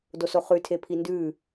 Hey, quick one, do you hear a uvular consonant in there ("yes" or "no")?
yes